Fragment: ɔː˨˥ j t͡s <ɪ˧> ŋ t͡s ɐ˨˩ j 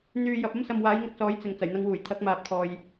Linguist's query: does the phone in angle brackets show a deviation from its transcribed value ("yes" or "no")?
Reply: yes